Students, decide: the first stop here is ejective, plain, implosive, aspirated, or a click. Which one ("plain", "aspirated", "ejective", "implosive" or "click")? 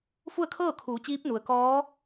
aspirated